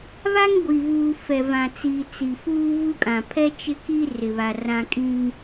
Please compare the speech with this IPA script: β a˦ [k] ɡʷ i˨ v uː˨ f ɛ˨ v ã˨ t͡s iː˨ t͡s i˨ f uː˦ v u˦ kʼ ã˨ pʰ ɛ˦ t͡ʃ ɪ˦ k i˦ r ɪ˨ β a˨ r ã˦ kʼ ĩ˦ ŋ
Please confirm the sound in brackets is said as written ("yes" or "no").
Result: no